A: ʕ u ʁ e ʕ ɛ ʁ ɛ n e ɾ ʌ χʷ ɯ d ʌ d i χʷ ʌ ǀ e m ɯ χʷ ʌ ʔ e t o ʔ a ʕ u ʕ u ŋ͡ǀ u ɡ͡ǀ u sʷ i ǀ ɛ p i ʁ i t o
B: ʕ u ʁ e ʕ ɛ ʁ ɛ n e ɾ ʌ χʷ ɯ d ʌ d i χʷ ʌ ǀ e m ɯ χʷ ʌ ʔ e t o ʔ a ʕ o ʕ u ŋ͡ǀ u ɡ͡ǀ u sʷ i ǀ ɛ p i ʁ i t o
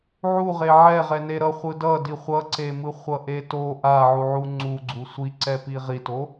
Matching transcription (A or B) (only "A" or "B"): A